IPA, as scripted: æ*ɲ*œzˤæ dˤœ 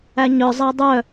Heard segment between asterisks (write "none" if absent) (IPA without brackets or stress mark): ɲ